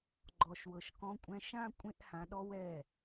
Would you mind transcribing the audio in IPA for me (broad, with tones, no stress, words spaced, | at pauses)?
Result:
ɡ͡ǃɔ˨ʃwɤ˨ʃkɔ̃˧kʷʼɛ̃˧ ʃã˦ kʷʼẽ˦ʔhã˧ɗɔ˦w ɛ˦˨